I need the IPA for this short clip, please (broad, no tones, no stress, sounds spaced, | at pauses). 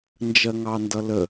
n d͡ʒ ɜ ŋ ɑ n d ʌ l ə